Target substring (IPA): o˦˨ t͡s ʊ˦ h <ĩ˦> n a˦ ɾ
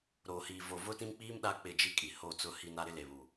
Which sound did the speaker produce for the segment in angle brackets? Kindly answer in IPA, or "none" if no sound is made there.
i˦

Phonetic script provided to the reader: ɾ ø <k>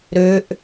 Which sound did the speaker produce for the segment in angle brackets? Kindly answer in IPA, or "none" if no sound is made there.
ʔ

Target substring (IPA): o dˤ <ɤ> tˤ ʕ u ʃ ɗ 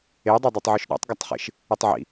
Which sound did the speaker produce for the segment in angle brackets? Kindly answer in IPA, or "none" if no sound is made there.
o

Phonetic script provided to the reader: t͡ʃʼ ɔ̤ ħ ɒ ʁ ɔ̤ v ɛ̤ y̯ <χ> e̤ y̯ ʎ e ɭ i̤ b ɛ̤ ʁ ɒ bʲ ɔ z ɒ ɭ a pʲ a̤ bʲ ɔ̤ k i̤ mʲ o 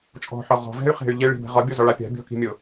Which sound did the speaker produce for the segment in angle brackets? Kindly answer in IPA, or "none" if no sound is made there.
χ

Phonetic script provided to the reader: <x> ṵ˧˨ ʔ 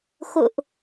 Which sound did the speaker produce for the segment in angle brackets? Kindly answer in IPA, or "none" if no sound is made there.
x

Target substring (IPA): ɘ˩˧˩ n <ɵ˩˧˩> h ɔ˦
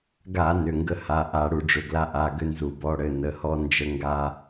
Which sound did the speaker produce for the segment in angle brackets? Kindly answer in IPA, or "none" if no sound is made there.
ə˩˧˩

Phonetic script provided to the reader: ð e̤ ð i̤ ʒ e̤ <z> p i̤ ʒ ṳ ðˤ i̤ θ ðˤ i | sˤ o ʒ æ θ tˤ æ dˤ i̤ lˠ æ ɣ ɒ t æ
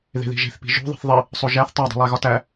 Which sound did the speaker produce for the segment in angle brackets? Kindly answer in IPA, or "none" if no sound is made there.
θ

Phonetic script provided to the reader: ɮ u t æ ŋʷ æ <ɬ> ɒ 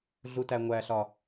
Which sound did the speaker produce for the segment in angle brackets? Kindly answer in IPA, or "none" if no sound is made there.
ɬ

